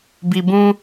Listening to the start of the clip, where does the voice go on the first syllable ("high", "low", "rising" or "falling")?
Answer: low